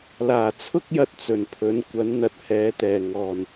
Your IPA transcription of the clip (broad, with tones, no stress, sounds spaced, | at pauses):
l aː˨˩ t͡sʰ ʊ˥ k̚ j ɐ˧ t̚ t͡s ɵ˨˩ n pʰ ɵ˨˥ n kʷ ɐ˨˥ n n̪ ɐ˨ t̚ h ɛː˨˧ t̪ ɛː˨˩ ŋ ɔː˨˩ n